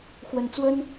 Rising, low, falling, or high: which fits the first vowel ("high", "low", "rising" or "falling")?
low